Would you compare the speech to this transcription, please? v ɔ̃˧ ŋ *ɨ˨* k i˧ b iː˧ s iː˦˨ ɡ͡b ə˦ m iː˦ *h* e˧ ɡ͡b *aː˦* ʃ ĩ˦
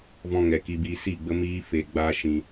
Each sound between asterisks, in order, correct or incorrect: incorrect, incorrect, correct

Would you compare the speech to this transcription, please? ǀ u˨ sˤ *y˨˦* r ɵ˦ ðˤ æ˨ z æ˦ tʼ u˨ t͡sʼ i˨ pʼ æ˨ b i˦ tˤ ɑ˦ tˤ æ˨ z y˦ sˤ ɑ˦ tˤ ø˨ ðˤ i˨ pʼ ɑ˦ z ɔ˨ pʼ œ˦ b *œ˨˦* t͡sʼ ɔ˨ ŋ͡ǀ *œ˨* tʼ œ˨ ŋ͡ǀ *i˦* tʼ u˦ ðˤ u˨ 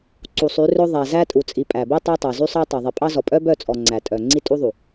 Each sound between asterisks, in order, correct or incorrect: correct, incorrect, incorrect, correct

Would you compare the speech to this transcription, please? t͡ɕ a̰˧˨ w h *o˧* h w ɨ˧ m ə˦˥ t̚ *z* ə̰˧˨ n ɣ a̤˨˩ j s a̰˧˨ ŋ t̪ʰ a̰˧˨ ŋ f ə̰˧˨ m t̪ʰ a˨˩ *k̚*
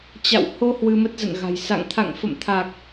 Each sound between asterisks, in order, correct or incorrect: correct, correct, correct

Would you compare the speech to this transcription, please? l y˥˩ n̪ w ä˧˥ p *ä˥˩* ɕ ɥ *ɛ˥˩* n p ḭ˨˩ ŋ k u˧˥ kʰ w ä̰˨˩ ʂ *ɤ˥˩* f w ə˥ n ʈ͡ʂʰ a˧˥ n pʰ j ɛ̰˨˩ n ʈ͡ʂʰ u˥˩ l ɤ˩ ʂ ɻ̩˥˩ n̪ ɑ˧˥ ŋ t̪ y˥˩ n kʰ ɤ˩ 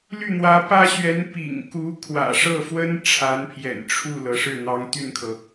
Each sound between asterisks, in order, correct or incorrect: incorrect, incorrect, correct

